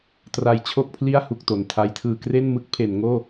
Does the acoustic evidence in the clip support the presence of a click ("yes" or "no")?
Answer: no